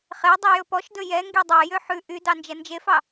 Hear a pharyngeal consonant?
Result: yes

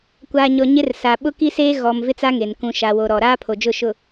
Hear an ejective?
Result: no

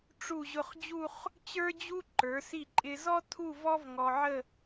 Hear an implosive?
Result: no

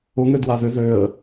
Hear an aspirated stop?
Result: no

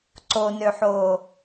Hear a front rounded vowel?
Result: yes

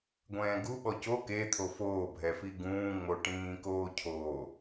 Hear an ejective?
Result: no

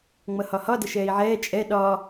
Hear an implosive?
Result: yes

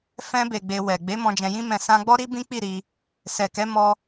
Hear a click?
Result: no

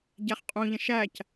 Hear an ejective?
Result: yes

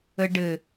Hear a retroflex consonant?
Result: yes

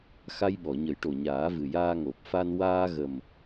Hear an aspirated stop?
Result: no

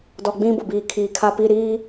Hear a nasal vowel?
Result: yes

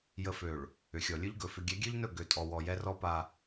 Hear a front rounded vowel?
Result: yes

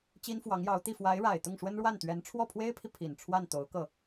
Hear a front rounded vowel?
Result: no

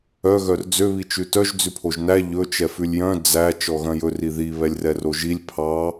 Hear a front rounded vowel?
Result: yes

